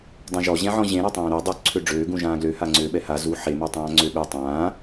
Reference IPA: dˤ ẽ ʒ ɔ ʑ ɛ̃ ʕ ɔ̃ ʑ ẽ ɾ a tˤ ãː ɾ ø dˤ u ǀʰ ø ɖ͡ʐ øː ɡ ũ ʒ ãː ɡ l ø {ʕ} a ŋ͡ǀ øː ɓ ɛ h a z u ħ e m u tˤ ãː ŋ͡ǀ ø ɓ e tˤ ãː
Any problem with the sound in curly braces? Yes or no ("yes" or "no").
yes